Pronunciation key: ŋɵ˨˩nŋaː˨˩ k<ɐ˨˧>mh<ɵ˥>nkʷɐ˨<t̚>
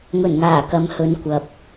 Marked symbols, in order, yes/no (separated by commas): yes, no, no